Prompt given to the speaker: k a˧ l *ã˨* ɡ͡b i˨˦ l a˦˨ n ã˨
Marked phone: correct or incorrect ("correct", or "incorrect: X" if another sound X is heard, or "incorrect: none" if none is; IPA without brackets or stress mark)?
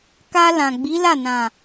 correct